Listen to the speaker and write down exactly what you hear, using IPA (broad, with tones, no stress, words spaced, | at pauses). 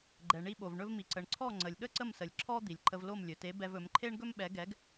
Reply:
ɡ͡ǃɛ˩ɳi˧ɓo˩v ɳɵ˧vmi˩ ǀə˩ɳǀʰɔ˥˩ ŋ͡ǀə˩lʲɠə˥ǀə˥˩msə˩lʲ ǁʰɔ˥ d̪i˩lʲǃə˧vlo˥˩m lʲɵ˩te˩˥ bɛ˧vɵ˩˥m ǃʰe˥ɳɡɵ˥mɓɛ˩˥ɡɛ˩˥ɡ